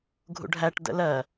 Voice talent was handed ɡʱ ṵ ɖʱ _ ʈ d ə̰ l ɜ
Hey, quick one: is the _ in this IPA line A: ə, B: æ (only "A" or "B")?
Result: B